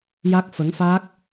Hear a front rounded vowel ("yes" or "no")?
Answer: no